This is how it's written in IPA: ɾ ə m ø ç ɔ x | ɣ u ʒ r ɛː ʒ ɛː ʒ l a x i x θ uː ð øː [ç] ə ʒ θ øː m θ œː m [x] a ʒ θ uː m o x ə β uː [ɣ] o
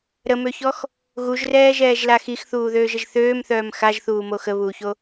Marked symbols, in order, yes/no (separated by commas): no, yes, no